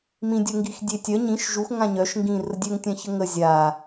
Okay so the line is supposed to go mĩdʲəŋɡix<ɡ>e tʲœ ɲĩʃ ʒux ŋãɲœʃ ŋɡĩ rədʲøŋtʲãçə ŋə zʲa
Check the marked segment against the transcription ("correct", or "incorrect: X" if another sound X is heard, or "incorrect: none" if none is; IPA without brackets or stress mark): incorrect: dʲ